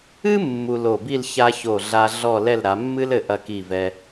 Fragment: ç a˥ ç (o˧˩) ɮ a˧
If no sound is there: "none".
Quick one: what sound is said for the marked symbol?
o˧˩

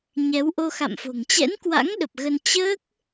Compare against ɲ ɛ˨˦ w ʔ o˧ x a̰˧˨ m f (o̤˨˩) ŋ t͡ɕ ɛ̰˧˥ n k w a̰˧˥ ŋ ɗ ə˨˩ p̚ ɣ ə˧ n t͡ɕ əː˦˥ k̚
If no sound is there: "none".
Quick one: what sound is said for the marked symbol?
o̤˨˩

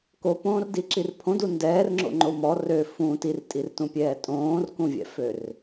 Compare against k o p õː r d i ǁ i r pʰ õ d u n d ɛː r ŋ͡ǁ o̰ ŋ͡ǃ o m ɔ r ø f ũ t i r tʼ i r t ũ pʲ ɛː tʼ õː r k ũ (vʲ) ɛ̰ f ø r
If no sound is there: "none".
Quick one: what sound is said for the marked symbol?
vʲ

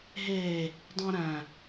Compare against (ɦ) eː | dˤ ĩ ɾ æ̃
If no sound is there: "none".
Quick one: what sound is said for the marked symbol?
ɦ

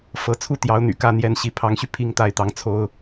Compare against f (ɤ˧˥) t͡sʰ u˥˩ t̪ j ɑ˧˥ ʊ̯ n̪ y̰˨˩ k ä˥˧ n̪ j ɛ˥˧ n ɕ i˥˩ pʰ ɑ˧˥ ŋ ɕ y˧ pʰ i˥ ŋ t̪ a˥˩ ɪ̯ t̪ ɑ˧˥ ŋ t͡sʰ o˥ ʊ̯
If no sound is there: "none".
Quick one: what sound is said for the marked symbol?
ɤ˧˥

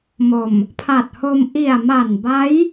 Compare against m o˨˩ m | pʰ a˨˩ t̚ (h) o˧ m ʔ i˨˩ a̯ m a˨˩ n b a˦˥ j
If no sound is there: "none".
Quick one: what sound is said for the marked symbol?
h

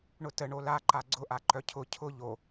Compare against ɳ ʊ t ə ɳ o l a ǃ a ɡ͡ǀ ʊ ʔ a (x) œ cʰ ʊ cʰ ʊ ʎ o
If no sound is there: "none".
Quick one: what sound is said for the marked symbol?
ǃ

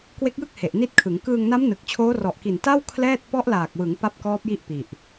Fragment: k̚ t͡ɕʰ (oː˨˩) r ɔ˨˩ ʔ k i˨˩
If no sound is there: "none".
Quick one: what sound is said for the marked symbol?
oː˦˥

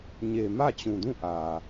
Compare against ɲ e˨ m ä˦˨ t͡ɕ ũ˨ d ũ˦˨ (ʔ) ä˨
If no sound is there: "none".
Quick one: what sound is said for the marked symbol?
ʔ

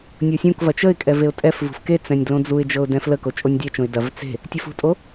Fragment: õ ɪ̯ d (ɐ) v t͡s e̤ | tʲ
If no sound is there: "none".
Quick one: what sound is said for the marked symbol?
ɐ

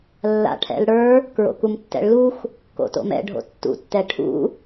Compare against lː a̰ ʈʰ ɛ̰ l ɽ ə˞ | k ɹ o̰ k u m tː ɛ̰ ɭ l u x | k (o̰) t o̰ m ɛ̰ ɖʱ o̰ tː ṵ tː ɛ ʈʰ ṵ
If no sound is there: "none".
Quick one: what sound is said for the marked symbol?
o̰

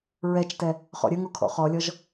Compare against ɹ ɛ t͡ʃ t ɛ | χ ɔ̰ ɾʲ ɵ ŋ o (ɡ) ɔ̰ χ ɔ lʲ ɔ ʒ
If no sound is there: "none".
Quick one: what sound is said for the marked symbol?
kʰ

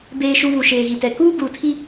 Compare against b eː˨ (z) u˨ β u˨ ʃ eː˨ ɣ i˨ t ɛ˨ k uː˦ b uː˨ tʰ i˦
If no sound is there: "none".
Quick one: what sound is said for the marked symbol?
ʃ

